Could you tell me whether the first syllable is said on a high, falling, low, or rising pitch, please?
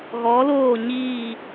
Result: rising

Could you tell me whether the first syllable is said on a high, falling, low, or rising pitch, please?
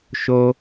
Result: high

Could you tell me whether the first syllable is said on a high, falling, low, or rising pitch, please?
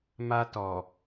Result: high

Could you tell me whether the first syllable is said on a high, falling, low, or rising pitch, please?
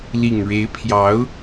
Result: low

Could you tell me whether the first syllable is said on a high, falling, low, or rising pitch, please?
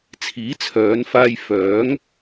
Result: rising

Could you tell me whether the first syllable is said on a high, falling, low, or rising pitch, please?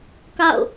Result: falling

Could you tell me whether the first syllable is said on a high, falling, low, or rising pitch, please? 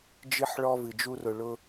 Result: high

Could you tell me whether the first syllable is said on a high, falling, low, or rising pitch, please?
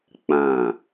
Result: falling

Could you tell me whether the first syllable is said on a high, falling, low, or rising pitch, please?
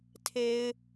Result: low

